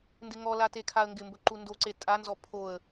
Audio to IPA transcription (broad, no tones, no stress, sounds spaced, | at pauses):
n d ɪ ŋ ɔ l a t e kʰ a ə̯ ŋ ɡ ɪ m b ɵ ǃ u n d o ǀ e tʼ a n z ɔ pʰ o ə̯